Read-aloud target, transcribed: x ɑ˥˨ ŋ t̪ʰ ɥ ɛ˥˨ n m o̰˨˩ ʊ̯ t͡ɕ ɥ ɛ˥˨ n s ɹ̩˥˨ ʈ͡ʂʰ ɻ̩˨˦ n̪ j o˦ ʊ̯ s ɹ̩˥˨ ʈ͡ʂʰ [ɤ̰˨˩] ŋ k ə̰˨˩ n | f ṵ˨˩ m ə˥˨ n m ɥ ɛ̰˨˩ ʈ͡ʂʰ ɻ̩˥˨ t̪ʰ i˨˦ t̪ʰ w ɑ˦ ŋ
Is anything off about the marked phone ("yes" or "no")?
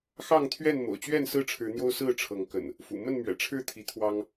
yes